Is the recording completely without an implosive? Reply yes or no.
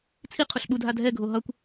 no